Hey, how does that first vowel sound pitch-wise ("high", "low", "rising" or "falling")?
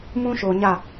high